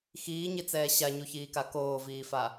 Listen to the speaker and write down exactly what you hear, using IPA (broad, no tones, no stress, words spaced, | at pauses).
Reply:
xiːɲit͡sɛː ɕaɲuçiːka koːviːfa